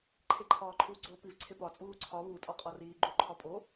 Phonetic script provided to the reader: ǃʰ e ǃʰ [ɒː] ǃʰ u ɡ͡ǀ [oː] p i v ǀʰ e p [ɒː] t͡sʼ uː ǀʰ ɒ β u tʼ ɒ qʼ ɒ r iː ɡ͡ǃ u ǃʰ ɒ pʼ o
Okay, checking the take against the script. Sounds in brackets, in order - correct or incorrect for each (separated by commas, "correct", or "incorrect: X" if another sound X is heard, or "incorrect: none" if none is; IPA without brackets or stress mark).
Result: correct, correct, incorrect: ɒ